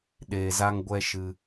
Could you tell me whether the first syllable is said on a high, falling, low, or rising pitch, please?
low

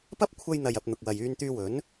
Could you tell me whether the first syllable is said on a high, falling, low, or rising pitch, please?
high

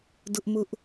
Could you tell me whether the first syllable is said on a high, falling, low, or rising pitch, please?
high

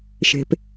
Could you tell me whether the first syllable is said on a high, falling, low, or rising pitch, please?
low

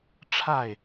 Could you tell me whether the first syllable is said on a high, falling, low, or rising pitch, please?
falling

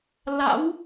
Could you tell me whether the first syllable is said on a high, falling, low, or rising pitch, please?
rising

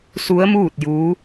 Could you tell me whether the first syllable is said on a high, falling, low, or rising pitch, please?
rising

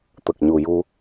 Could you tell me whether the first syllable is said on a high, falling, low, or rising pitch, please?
low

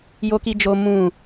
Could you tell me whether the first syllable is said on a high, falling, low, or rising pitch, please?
high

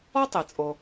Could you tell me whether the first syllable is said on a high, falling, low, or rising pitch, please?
high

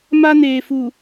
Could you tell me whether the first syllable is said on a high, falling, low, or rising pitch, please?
high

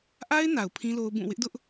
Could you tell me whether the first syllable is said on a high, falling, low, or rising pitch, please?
high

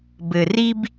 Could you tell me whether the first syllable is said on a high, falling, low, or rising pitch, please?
low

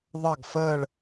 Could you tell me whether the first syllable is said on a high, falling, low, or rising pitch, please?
falling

